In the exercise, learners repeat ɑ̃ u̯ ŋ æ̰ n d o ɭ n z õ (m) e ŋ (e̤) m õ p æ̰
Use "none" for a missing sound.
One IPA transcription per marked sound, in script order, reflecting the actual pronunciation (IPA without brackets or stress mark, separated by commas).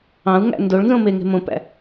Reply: m, e̤